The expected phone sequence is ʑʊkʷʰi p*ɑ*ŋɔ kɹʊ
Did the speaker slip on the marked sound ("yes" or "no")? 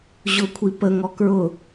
yes